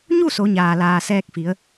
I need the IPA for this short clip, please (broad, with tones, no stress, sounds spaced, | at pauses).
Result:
ɲ u˥˨ s o˩˧ ɲ aː˩ l aː˩ s ɛː˧ k̚ f i˩˧ ə̯